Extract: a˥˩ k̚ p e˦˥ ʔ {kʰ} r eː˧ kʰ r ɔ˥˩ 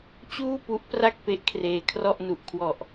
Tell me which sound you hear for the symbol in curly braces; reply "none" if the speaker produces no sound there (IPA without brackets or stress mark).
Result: kʰ